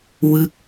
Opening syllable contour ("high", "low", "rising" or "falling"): falling